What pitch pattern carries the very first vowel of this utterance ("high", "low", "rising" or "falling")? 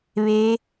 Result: rising